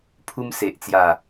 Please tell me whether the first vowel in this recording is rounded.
yes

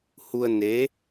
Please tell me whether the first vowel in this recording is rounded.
yes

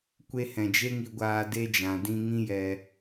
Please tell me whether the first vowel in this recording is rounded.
no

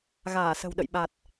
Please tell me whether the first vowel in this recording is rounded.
no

